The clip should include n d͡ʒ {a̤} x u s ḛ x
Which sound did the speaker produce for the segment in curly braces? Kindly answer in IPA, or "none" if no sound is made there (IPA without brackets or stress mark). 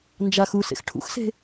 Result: a